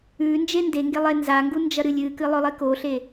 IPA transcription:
ʉ n d͡ʒ e n d e ŋ ɡ e lˠ e n z a ŋ ɡ u n d͡ʒ ɐ ɾ ɨ lʲ ɨ k ɨ lˠ ɵ lˠ i k o ɬ e

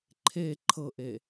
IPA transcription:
ǃʰ e ǃʰ ɤ ʔ e

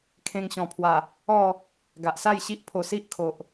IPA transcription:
kʰ ẽ˧ ŋ ɕ ɔ̃˨˩ pʰ w a˨˩ | ɔ˥˧ | ɡ a˨ ʔ s a˥˧ j ɕ i˦ ʔ pʰ o˧ s i˦ ʔ kʰ o˨ ʔ

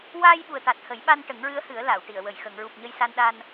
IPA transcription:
w aː˧ j ɓ u˨˩ ə̯ t̪ a˨˩ t̚ h ə˨˩˦ j ɓ a˧ n ʈ ə˨˩˦ ŋ ɹ ɨ˧˥ ə̯ h ɨ˨˩˦ ə̯ l a˨˩˨ w ʈ i˨˩˨ ə̯ w ə˨˩ j x ə˨˩˨ ŋ ɹ u˨˩ p̚ ɲ ə˧ j s a˧ n ɗ a˧ n

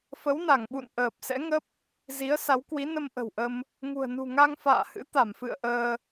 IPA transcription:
f ə˨˦ w n a˧˩ ŋ ɓ ṵ˧˨ n ʔ əː˨˩ p̚ s ɛ̰˧˥ ŋ ə˦˥ p̚ | z i˨˦ ə̯ s a˨˦ w k w i˨˦ n ə˧ m ʔ ə̤˨˩ w ʔ ə˧ m | ŋ ṳ˨˩ ə̯ n ṳ˨˩ ŋ a˧ ŋ f a̰ː˧˨ h ɨ̰˧˥ t̪ a˧˩ m f ɨ̰˧˨ ə̯ ʔ əː˧

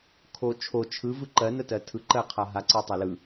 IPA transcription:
kʰ o t͡ʃʰ o t͡ʃʰ ɯ v ɯ ǃ ɜ n ə t ɜ tʰ ɯ ǃ ɜ qʰ a ɦ a ǀ ɜ tˤ a l ɯ

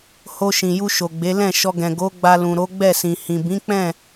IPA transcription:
h o˧ ʃ ĩ˨ j u˧ ʃ o˨ ɡ͡b e˨˦ l ɛ̃˦˨ ʃ ɔ˧ ɡ ɛ̃˨ ɡ o˨˦ ɡ͡b a˧ l ũ˨ ɾ o˨˦ ɡ͡b ɛ˦˨ s ĩ˨ h ĩ˨ b ĩ˨˦ k͡p ɛ̃˦˨

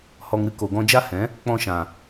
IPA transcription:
h ɔ˧ ŋ ɾ ɨ˦ k o˨ ɡ ɔ̃˧ d͡ʒ a˦ h ɛ̃˨˦ | k͡p ɔ̃˧ ʃ ã˨

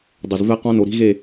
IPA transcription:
dˤ e˨ z v ɛ˦ q ɔ̃˦ n o˨ ɾ i̤˦ ɣ e˦˨

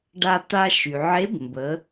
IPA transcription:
ɖ a˧ t̪ a˧ ʃ y˩ ʕ e˧˥ b m b ə˩˧

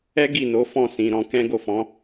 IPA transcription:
ɛ˦ ɡ i˦˨ n o˨˦ f ɔ̃˦˨ s ĩ˨ ɾ ɔ̃˧ k ɛ̃˦ ɡ o˦˨ f ɔ̃˨˦

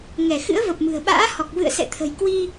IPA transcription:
ŋ ɛ˧˩ x ɨ̰˧˥ ə̯ v ə˨˩ p̚ m ɨ̤˨˩ ə̯ ɓ a̰ː˧˥ h ɔ˨˩ k̚ v ɨ̰˧˨ ə̯ s ɛ̰˧˨ t̪ʰ ə̤˨˩ j k w i˧

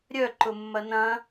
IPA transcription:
ɾʲ œ ǃ ʊ mː ɐ n ɐ̃

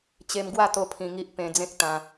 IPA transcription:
t͡ɕ e˧ m ɡ w a˥˧ t̪ o˦ pʰ ĩ˧ ŋ i˦ ʔ p ẽ˧ d͡z ẽ˦ k̚ t̪ ã˧

